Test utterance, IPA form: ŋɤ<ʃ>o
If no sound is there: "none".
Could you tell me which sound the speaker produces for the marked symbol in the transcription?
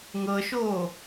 ʃ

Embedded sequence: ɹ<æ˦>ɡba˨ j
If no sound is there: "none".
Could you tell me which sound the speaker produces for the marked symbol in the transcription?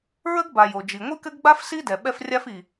ə˦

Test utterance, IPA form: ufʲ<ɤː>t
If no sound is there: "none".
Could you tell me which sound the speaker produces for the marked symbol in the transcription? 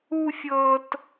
ɤː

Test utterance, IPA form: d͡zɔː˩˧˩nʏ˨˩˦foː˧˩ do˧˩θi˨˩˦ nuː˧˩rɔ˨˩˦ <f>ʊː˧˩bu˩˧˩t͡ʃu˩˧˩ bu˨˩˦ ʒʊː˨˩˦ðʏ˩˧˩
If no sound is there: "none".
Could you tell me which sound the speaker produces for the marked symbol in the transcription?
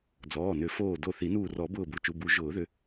b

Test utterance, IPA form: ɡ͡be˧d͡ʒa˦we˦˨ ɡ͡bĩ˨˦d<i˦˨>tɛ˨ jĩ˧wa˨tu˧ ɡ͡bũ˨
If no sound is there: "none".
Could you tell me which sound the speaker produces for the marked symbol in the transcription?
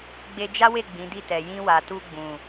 i˦˨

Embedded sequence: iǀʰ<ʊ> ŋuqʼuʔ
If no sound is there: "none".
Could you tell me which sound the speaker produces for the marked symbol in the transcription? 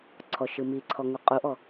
ɔ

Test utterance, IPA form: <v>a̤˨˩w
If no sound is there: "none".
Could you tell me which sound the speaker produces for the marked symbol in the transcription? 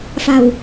f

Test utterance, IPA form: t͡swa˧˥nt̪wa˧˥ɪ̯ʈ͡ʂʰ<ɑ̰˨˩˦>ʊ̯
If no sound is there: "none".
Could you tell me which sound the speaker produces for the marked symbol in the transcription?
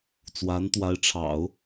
ɑ̰˨˩˦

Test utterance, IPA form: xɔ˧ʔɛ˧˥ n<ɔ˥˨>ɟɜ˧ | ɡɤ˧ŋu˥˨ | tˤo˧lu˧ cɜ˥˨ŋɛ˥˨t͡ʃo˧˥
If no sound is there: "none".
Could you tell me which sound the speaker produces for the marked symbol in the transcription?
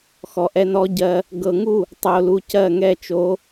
ɔ˧˥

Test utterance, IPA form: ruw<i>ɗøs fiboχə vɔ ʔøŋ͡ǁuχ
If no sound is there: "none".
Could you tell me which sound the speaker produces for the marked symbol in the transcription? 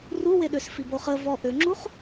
e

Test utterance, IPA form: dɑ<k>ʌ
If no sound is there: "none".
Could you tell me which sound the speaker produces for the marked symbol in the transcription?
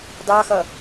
x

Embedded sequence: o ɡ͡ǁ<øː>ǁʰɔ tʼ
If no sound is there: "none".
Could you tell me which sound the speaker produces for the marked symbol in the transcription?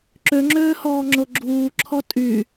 uː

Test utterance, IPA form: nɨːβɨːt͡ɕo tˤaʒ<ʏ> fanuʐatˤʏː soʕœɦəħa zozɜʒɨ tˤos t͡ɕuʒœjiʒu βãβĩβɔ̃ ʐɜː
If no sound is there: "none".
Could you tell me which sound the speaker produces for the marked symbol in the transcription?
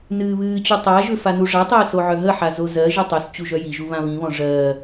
ʏ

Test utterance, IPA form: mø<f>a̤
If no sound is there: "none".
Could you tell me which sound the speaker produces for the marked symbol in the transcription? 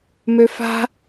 f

